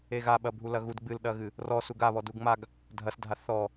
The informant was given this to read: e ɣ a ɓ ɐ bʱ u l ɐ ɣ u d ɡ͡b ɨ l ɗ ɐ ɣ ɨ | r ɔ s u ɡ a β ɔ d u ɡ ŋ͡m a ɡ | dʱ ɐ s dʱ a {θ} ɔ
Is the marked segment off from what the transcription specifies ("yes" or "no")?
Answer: no